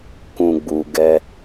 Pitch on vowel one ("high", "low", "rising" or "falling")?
low